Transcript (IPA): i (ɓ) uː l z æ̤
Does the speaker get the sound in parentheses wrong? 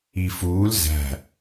yes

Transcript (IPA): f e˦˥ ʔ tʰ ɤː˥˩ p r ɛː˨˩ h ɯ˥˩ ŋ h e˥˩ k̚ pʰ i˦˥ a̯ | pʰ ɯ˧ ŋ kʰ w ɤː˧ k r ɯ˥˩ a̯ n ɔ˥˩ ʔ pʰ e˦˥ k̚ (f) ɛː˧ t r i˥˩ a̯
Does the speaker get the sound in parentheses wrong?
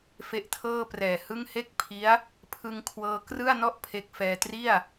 no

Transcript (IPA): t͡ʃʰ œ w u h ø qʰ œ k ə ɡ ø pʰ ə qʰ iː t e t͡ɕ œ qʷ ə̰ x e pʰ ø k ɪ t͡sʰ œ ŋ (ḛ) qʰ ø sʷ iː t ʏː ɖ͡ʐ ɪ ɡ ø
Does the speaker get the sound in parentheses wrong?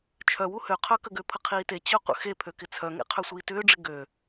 no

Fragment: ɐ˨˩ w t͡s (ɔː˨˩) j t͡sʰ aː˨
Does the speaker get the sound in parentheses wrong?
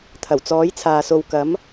yes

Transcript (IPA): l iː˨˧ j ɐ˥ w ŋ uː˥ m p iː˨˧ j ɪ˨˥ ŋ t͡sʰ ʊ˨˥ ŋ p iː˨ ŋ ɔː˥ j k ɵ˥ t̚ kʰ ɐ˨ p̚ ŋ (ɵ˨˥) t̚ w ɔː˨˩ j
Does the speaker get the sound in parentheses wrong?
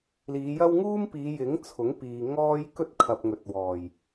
no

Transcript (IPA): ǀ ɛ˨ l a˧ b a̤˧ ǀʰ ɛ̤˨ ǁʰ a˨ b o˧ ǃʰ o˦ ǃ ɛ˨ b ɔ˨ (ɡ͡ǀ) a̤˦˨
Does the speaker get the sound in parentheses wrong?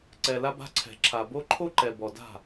yes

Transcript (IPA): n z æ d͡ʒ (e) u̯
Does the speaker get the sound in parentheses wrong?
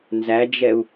yes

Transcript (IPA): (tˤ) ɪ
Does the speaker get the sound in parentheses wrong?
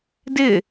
yes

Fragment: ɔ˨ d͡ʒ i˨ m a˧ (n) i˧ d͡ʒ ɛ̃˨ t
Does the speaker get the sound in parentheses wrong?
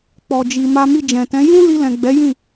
yes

